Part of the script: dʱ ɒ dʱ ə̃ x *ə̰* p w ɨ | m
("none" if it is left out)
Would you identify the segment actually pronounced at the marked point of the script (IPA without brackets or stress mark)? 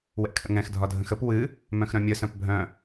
ə